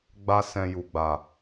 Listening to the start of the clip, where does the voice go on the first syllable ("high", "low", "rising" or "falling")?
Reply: high